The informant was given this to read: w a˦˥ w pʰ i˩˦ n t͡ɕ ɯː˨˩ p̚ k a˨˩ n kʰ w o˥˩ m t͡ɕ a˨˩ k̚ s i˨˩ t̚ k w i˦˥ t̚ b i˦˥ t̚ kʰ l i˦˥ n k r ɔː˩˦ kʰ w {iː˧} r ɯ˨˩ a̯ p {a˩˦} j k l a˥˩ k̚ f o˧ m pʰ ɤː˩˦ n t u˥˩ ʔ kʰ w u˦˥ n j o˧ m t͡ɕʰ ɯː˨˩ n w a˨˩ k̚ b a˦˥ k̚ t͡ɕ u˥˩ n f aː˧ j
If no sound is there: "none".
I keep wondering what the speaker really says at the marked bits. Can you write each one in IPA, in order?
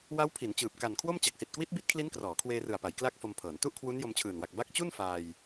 eː˧, a˩˦

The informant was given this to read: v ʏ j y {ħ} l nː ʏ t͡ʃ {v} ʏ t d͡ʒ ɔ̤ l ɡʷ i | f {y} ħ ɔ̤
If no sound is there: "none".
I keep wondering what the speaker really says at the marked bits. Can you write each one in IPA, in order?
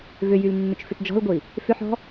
none, f, ʏ

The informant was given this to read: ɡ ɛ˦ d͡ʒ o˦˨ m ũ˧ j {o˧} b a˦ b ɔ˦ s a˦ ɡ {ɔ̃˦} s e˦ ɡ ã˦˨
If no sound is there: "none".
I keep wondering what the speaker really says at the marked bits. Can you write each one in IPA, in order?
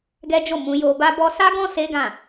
o˧, ɔ̃˦

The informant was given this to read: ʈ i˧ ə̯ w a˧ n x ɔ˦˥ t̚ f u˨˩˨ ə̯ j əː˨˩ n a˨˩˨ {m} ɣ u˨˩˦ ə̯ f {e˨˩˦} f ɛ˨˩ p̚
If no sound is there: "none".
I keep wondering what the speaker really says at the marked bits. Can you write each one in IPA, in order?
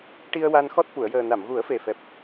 m, e˨˩

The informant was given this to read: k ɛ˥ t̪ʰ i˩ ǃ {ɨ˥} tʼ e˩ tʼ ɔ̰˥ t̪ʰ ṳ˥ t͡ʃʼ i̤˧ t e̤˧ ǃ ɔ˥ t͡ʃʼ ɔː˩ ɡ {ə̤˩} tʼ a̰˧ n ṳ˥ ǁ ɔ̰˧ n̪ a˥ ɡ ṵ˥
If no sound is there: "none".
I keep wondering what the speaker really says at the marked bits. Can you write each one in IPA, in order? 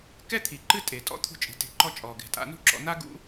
ɨ˥, ɛ̤˩

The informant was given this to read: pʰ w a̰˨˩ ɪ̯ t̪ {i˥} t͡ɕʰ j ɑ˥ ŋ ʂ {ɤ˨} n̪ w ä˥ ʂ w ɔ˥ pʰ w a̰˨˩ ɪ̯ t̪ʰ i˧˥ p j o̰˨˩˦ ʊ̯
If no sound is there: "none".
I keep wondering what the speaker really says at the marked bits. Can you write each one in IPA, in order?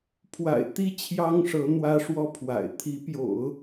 i˥, ɤ˧˥

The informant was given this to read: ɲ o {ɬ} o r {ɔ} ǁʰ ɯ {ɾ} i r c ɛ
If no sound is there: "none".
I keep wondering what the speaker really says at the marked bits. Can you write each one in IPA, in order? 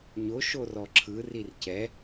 ʃ, ɔ, r

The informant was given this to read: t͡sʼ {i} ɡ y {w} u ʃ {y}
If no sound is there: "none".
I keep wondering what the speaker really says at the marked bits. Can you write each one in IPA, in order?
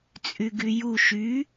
y, j, y

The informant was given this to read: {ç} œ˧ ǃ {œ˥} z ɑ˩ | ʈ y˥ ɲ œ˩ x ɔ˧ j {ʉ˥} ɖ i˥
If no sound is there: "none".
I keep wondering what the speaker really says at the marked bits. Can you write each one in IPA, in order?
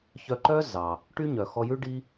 ç, œ˥, ʉ˥

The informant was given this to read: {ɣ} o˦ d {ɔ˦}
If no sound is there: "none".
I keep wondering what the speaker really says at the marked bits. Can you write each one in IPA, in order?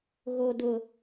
ɣ, ʊ˦

